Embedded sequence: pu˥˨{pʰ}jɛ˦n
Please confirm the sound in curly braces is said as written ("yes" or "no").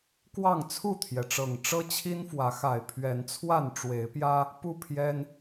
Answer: yes